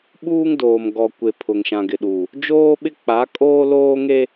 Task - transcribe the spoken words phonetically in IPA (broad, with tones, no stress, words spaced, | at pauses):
ɓuː˦ŋdoː˨m ɡɔ˨ kʷe˨ pʰʊ˨ŋʃã˨ɡɪ˨ɗuː˨ | d͡ʒoː˦ɓɪ˦k͡pa˨˦ kʼoː˦loː˦ ŋe˦